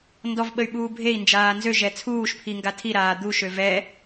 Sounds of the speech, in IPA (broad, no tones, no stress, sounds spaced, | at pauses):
n d ɔ v ɓ ə y̯ ɓ uː bʱ e i̯ n d͡ʒ aː n z ø ʒ ɛ t͡sʰ uː ʃ pʰ i ŋ ɡ a tʰ i ɾ aː d̪ u ʃ ø v ɛ